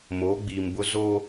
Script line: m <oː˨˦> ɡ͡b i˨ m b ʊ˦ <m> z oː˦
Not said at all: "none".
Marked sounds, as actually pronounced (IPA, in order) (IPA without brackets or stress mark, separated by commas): oː˨˦, none